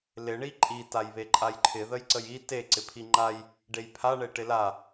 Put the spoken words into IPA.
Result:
lɪ ɳiǃʼi tajβeǃʼajǃʰɪ ðəjǀəji te ǀɪpʰiŋ͡ǃaj | ɖejpʰa ɳeʈɪla

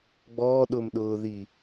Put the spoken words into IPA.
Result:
ɡ͡bɔːɗʊːmɗʊːði

